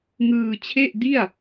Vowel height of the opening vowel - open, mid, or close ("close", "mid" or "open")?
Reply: close